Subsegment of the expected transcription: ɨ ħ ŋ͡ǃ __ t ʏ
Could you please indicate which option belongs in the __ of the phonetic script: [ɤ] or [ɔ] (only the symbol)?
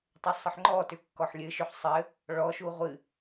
ɔ